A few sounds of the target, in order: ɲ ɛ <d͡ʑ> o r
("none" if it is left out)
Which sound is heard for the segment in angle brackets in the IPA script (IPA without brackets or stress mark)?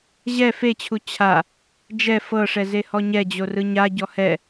d͡ʑ